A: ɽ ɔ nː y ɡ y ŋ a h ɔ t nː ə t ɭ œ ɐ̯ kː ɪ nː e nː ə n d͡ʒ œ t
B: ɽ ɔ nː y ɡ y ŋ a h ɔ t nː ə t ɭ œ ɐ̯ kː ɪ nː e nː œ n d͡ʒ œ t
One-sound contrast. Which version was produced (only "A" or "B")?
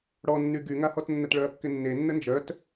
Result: A